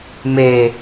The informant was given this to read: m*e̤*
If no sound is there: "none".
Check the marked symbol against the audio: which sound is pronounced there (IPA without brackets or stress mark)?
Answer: e